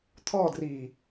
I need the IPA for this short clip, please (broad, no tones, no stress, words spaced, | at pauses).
t̪ʰɔdriː